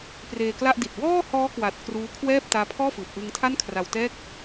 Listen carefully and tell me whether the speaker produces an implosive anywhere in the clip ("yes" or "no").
no